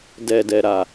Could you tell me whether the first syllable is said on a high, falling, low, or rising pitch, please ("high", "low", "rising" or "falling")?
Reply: low